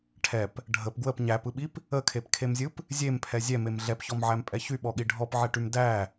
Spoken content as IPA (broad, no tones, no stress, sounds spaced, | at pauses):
ʈʰ ɛ p | ɖʱ ə p ɡ w ə p ɲ æ p ɯ ɓ i p | ə kʰ e p kʰ e m zʲ ɯ p | zʲ e m pʰ ɛ zʲ ɛ m e m ɮ ɛ p ç ɔ m ʕ æ m pʼ ɛ ç y ɓ ɔ ɠ i ɖʱ ɔ p ʕ ɛ ʈ y m d æ